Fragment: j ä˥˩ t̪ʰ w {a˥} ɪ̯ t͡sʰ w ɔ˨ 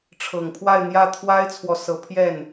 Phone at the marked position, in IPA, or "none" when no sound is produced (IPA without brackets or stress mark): a˥